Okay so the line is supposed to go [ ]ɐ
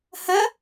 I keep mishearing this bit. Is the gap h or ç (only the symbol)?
h